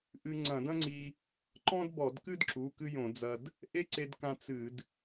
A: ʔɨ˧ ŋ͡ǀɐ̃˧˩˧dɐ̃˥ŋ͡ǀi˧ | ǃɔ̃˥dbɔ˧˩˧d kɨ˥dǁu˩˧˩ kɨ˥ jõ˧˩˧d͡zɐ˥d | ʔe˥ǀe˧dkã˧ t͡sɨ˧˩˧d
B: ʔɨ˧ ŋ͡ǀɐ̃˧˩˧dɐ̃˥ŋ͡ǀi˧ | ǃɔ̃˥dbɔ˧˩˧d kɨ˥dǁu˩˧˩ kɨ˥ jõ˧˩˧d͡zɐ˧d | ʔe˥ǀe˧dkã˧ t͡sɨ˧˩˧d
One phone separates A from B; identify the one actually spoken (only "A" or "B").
B